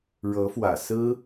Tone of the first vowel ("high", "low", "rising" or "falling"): rising